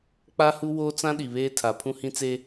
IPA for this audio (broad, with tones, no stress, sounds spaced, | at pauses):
k͡p a˦ h u˦ w oː˦ t͡s ã˦ ɗ i˨ β eː˦ tʰ a˨ pʰ ũ˦ h ĩ˦ t͡s e˦